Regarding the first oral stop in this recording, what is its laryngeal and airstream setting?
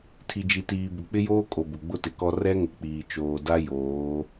aspirated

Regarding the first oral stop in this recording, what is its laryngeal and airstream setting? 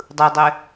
plain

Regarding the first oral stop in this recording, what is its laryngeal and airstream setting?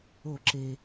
click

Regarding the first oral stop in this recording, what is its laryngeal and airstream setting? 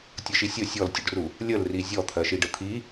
plain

